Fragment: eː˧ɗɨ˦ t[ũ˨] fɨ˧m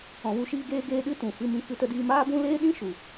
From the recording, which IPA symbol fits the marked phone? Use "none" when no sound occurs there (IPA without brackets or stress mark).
ũ˨